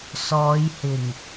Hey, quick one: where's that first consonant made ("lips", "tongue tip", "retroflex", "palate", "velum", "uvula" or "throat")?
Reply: tongue tip